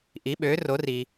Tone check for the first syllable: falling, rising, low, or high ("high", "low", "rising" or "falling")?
rising